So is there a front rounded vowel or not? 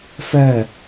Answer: no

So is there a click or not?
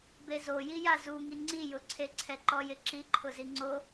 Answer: yes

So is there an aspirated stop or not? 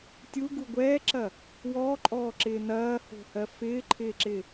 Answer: yes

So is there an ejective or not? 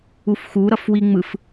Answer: no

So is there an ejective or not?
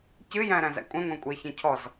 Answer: yes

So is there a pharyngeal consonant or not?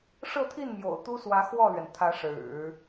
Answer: no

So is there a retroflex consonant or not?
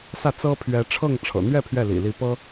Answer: yes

